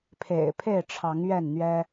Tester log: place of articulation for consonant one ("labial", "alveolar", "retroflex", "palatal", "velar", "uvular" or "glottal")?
labial